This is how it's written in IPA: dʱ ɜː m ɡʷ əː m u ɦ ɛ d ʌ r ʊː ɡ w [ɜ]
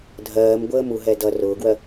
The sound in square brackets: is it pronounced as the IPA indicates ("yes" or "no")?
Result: yes